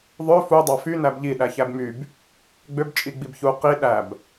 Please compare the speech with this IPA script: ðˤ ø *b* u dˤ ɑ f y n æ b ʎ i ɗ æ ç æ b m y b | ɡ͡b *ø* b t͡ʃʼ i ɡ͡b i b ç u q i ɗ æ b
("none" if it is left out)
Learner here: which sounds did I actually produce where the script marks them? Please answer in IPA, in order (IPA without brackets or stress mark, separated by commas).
f, ø